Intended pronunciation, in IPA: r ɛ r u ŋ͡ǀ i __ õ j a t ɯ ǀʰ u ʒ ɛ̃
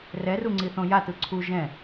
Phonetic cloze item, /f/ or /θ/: θ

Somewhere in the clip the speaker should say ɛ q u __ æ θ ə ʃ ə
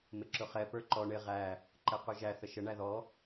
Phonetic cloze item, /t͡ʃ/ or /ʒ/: ʒ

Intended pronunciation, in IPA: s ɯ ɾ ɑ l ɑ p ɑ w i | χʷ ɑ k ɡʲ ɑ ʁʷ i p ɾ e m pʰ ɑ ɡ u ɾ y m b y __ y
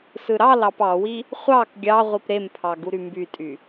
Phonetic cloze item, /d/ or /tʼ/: tʼ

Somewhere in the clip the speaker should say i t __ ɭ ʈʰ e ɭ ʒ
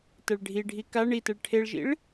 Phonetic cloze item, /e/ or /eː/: e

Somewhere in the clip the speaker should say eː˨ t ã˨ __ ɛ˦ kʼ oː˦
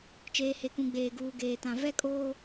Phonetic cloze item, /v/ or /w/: v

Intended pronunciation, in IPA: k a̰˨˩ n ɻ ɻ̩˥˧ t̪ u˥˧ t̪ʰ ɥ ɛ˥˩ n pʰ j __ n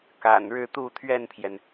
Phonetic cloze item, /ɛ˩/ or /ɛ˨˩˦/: ɛ˩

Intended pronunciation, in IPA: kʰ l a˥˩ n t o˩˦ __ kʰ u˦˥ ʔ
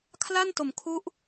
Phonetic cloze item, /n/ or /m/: m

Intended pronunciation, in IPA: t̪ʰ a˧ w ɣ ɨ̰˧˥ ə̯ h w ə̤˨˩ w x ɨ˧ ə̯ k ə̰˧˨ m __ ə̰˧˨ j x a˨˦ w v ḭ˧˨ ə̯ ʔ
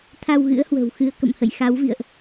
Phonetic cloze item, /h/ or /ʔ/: h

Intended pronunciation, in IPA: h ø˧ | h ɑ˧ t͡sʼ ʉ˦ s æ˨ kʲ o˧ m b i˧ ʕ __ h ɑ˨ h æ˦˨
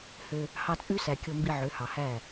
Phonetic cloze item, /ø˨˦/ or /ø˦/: ø˨˦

